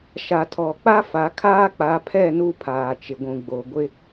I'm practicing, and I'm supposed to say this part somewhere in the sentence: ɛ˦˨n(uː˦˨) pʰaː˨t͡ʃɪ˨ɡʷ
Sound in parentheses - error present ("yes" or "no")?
yes